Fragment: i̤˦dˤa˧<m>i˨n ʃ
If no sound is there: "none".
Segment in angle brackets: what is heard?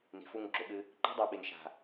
ɓ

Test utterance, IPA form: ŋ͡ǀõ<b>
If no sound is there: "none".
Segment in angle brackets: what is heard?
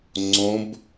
b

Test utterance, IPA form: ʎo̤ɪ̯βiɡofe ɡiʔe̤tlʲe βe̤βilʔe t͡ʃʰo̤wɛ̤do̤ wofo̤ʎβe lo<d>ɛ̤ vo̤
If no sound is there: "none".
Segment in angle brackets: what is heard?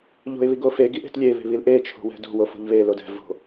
d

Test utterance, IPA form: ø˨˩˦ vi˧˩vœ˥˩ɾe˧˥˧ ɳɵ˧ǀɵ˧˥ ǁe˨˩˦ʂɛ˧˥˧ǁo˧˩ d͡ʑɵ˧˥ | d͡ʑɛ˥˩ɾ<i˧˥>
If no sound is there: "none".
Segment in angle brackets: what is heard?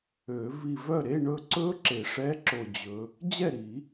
i˨˩˦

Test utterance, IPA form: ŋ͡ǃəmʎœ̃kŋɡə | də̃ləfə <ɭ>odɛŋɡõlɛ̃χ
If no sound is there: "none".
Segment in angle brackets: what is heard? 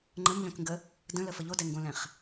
ʎ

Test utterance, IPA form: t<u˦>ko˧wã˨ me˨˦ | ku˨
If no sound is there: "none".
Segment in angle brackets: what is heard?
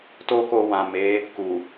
o˦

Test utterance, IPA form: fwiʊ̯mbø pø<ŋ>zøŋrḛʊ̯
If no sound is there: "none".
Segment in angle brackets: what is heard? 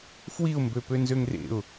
n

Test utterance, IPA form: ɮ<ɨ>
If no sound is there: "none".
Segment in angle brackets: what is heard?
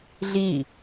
i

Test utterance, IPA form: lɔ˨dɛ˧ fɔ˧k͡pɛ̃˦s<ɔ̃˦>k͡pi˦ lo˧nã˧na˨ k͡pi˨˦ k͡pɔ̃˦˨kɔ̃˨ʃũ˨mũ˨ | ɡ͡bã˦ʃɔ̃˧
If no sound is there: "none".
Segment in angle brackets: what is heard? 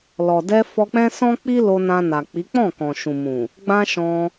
ɔ̃˦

